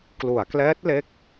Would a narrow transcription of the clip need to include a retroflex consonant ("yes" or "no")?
no